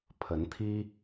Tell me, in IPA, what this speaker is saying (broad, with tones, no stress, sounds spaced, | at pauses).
pʰ ə˨˦ n t̪ʰ i˦